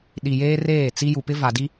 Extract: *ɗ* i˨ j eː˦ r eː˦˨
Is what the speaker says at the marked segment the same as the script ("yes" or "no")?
yes